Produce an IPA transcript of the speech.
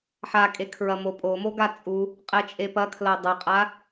ħ a kʼ e kʰ ɹ ɐ m o pʼ o m o ɡ a t͡sʼ u | qʼ ɛ t͡ʃʼ e p ɐ kʰ l ɐ dˤ ɐ qʼ a

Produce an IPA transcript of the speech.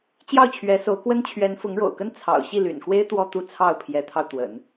t͡ɕ j ɑ˥˩ ʊ̯ t͡ɕʰ ɥ ɛ˧˥ s o˧˥ ʊ̯ k w ə˥ n t͡ɕʰ ɥ ɛ˧˥ n f ʊ˧˥ ŋ ɻ o̰˨˩ ʊ̯ k ə˥ n t͡sʰ ɑ̰˨˩ ʊ̯ ɕ i˥˩ l y̰˨˩ n k w e˥ ɪ̯ t̪ w ɔ˥˧ t̪ u˥˧ t͡sʰ ɑ˥˩ ʊ̯ pʰ j ɛ˧˥ t̪ʰ ɑ˧ ʊ̯ t̪ w ə̰˨˩˦ n

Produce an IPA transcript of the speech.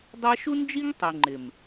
dˤ ɛ˦ ʃ u˦ n d͡ʒ i˦ ŋ tˤ i˨ ŋ͡ǃ ɪ˨ m

